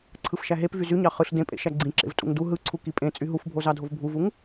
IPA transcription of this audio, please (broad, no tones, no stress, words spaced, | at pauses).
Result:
ǀʰɯfʃæɦepvy zyɲɑ χɯɬ dẽpʼḛ ʃæɡ͡ǀĩǁḛv tʼṵŋdu ɦɯǀʰu kipʼẽt͡sʼy ɦufbʱozɑdʱov bʱuvuŋ